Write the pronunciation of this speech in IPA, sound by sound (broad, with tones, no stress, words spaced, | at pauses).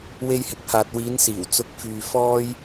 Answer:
we˧jhɪ˨k̚haː˨t̚ wiː˨˧nsiː˨˩wt͡sʊ˨˥k̚fyː˨ fɔː˥j